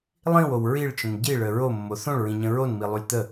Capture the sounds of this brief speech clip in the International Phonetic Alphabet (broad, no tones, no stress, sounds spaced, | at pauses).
lˠ ĩ w o w ɹ i ɭ t͡ʃ ə̃ n ɟ i ɭ ə ɹ o mː o θ õ ɭ ɹ ĩ ɲ ə̃ ɹ o n m i lˠ u lʲ t̪ ə